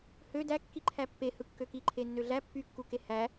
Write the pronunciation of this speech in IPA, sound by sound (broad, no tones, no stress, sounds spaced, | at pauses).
h ø d æ kː i ǃʰ æ pː e h ɯ kː ø k i ǃʰ e nː ø ɮ æ pː y kː u k e h æ